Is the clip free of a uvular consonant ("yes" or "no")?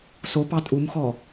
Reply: yes